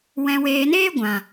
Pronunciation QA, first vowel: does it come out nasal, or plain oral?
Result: nasal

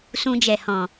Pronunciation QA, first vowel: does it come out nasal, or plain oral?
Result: nasal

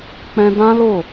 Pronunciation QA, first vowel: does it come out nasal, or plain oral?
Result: nasal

